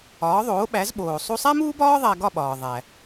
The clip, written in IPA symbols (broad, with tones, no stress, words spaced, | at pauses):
ɒː˩˥ðˤoː˩˥ɓæ˩˥z ɓoː˩ sˤu˧sˤæ˥muː˥bɒː˥ ðˤæ˧ɡɒ˥˩ɓɒː˩ ðˤæ˩